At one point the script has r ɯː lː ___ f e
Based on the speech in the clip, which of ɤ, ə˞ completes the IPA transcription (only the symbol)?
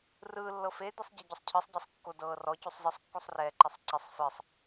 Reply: ɤ